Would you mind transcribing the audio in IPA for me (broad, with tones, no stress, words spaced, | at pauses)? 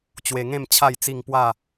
t͡ɕwe˧ŋẽ˥˧m t͡ɕʰa˥˧jt͡si˥˧ŋ pwa˥˧